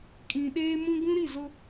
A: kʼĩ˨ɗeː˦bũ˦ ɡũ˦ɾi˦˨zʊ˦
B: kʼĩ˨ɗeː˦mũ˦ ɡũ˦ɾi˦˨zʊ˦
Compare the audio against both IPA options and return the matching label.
B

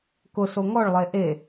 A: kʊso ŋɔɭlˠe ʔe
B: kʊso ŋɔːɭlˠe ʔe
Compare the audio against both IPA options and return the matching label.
A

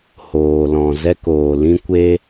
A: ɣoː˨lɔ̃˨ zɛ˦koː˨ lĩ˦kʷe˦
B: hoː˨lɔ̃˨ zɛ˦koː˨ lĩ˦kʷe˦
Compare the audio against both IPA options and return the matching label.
B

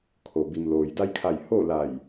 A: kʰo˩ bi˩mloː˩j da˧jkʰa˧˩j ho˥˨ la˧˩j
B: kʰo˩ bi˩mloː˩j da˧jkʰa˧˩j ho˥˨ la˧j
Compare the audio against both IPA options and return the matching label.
A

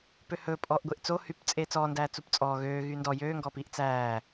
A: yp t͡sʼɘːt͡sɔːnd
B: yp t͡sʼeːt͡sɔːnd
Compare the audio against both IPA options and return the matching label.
B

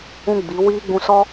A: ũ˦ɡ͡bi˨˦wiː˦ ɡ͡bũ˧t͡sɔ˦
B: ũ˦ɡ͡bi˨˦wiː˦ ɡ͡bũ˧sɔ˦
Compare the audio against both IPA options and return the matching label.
B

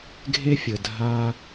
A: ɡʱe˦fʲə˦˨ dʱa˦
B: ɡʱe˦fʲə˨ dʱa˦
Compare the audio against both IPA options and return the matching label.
B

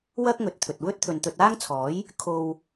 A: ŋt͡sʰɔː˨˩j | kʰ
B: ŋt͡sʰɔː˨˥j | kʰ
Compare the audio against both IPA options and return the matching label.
B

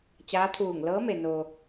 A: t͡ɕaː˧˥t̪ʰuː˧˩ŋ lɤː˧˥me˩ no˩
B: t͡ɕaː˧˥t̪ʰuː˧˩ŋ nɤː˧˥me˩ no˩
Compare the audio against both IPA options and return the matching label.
A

